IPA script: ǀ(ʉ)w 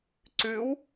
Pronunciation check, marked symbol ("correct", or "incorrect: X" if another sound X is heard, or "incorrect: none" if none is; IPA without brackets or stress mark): correct